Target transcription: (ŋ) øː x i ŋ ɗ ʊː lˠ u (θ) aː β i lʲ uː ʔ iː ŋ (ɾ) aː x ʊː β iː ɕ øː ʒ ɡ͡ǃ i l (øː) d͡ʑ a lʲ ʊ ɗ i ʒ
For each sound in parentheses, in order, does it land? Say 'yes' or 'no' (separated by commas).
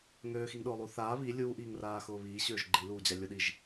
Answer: yes, yes, no, no